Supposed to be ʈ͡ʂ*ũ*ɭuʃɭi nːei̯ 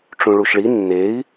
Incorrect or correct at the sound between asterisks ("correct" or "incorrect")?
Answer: correct